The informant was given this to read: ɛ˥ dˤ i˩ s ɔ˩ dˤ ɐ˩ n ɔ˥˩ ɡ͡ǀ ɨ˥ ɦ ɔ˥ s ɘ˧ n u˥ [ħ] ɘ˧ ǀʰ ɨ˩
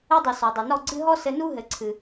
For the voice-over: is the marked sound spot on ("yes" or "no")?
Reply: no